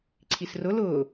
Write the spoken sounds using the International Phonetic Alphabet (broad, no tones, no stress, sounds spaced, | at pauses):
ǀʰ i s r ʊ l ʊː